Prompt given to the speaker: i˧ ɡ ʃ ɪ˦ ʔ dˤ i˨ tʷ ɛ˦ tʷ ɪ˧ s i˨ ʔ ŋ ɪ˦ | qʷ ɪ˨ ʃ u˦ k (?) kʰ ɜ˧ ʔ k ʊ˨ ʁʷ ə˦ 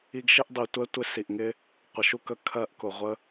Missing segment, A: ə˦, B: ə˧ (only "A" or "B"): B